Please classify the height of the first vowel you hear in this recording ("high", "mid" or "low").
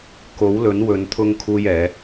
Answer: mid